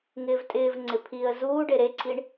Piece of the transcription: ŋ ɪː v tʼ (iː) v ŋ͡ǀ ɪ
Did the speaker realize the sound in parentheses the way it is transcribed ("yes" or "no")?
no